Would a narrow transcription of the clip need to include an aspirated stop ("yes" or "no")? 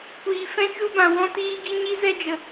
no